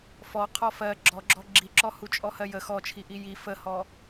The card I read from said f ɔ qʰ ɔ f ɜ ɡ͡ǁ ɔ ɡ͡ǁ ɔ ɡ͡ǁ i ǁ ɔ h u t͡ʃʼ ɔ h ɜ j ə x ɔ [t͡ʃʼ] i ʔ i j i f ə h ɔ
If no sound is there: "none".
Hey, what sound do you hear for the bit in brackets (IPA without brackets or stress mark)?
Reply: t͡ʃʰ